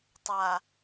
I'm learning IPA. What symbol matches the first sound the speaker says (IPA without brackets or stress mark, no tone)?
tˤ